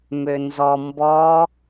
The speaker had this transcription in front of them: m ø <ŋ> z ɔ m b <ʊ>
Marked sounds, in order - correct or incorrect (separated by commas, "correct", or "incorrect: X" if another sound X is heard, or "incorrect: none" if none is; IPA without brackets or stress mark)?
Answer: incorrect: n, incorrect: ɔ